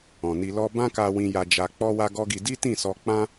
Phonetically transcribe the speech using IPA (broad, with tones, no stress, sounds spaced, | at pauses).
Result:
ɔ̃˨ n i˧ l ɔ˦ b ã˦ k a˧ w ĩ˧ j a˧ d͡ʒ a˧ k͡p ɔ˦ w a˦ ɡ ɔ˦ ɡ i˧ d i˦ t ĩ˦˨ s ɔ˧ k͡p ã˦